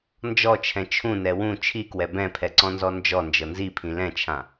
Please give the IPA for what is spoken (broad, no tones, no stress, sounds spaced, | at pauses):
n d͡ʒ ɔ t͡ʃʰ ɛ̃ t͡ʃʰ ũ n ɛ w ũ t͡ʃʰ i k w ɛ b ɛ̃ pʰ ɛ ǀ ɔ̃ n z ɔ n d͡ʒ ɔ n d͡ʒ ɤ n z i pʰ ĩ l ɛ̃ t͡ʃʰ ã